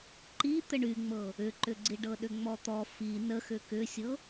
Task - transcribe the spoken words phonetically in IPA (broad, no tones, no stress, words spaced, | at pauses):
ǃi t̪əɳyŋ͡mɤ | ʏǃʏɡ͡ǀi ɖɤɗʏŋ͡mɔt̪ɔ fi nəxʏ kʏsʲɤ